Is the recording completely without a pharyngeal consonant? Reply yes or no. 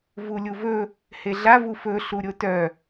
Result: yes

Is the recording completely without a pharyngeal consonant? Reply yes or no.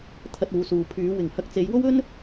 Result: yes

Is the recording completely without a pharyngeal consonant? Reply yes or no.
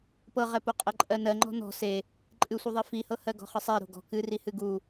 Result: yes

